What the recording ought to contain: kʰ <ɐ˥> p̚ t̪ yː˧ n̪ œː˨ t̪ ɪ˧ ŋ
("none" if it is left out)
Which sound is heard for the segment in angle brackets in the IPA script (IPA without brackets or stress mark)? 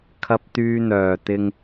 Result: ɐ˧